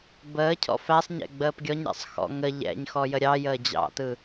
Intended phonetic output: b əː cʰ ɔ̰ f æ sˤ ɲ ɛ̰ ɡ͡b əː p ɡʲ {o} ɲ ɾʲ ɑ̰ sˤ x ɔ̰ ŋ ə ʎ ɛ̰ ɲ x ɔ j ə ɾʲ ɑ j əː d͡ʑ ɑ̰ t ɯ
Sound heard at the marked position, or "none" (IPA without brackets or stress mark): ɔ